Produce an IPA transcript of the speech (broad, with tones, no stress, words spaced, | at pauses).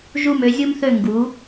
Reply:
ʒu˧˩mø˩˧zʲu˧mθø˧˩ ŋɡu˩˧